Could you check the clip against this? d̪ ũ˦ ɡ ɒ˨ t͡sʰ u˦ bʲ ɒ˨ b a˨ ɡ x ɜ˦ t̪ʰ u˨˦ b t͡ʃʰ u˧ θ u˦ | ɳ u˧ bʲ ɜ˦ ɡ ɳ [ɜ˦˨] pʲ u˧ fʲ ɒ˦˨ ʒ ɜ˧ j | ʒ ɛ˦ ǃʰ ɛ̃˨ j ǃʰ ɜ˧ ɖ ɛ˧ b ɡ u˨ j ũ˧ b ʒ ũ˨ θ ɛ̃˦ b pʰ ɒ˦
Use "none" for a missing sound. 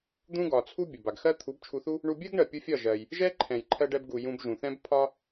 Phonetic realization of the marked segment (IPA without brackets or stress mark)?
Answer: ɜ˨